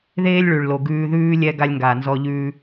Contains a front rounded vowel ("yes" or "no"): no